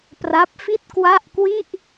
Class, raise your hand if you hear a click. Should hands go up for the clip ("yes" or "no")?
no